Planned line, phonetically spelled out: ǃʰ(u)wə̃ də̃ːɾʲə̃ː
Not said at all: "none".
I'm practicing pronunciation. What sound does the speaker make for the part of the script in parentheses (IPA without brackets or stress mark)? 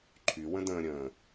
y